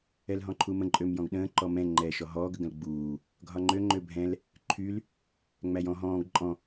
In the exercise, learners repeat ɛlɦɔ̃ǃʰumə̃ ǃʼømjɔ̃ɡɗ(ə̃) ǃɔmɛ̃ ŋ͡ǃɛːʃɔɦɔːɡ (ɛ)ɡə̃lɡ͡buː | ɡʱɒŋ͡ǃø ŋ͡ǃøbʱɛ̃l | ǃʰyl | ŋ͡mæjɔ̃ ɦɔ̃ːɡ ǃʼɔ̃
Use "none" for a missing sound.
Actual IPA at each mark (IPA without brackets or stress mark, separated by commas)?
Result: ə̃ː, ə